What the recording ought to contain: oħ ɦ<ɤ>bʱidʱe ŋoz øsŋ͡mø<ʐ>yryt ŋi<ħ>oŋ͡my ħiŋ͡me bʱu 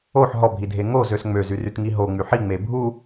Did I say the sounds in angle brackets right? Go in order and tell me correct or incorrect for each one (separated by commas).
incorrect, incorrect, incorrect